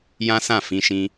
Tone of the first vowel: high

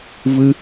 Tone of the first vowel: high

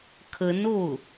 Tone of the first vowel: rising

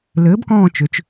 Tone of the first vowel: rising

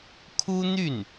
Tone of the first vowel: high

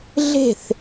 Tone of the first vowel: falling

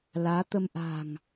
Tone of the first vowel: rising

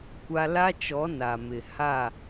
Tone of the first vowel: high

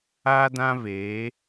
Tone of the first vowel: high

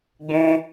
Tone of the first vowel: high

